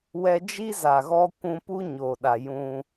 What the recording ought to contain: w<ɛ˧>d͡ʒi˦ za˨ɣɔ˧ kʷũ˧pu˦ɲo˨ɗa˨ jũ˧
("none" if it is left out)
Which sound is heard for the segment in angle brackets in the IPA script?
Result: ɛ˧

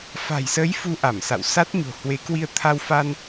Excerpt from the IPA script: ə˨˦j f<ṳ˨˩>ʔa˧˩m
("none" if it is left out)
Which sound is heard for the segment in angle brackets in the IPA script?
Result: u˧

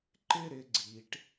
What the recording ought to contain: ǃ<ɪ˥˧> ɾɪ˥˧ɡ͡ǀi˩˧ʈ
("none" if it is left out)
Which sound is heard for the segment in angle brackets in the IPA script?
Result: ɪ˥˧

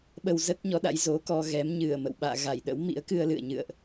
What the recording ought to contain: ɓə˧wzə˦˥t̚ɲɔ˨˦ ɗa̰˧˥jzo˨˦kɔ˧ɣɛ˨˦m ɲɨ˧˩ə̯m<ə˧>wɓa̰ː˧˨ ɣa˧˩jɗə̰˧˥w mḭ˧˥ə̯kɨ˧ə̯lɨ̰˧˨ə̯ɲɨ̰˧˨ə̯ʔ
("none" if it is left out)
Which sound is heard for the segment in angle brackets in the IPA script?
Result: ə̰˧˨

